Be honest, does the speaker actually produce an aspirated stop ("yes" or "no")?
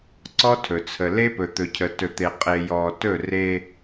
yes